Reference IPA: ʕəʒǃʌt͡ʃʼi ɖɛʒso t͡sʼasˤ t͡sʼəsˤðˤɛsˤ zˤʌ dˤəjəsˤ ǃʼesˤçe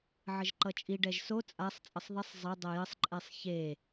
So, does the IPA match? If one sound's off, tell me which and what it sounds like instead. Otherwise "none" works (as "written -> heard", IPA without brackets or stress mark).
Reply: none